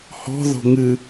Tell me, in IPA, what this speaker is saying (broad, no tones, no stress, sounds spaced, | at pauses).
h ɔ̤ ð ɔ̤ ŋ ɨ